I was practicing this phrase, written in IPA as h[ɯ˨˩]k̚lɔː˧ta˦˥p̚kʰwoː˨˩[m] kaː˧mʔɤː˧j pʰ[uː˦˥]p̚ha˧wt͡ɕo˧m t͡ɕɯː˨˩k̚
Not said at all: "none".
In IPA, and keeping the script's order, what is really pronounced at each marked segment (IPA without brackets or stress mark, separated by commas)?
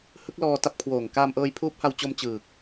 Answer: ɯ˦˥, ŋ, uː˦˥